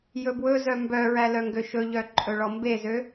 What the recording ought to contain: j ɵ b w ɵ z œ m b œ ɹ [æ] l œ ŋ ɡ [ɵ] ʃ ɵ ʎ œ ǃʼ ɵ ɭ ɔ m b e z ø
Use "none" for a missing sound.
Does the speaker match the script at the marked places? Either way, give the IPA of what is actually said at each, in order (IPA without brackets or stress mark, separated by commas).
æ, ø